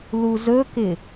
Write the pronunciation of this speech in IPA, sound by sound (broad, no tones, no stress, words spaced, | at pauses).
luzɵkɪ